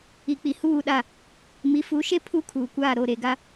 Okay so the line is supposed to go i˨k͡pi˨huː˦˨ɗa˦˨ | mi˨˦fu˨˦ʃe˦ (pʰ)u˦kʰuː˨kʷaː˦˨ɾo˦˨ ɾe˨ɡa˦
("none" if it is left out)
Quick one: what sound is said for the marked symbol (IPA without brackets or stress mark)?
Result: pʰ